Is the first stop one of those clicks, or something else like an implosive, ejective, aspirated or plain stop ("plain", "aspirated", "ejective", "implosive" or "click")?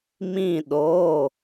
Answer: implosive